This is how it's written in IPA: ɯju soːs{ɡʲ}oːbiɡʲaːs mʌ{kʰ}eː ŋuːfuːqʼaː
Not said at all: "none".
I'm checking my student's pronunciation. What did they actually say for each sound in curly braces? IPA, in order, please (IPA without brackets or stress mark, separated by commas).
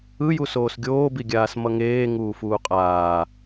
ɡʲ, ŋ